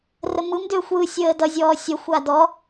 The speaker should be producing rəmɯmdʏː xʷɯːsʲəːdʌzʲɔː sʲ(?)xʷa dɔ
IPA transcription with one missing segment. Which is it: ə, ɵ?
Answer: ə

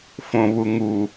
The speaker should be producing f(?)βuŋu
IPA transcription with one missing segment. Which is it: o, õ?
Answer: õ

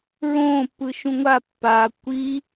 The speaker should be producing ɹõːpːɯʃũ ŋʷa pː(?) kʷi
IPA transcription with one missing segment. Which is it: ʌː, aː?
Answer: aː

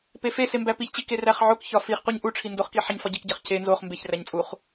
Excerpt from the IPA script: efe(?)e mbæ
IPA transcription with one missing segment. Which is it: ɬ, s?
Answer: s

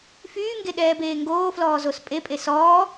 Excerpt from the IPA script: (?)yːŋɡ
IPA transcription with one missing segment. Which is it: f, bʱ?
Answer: f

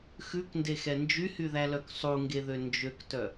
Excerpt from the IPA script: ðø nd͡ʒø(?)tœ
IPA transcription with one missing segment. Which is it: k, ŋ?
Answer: k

